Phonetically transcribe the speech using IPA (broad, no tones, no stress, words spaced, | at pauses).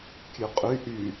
kʲʉqʼy ʔy